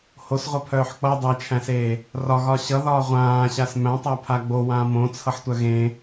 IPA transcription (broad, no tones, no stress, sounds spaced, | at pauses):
h o s ʁʷ ʌ pʰ œː ħ k͡p ʌ dˤ a t͡ʃʰ æ̃ s eː | r ɒ ɣ ɒ ɕ ʌ ð ɒː ʁʷ ãː ɕ a s m æ̃ tˤ a pʰ a ɡ͡b o w ãː m õ t͡sʰ ʌ ħ tʷ œ ɣ ẽ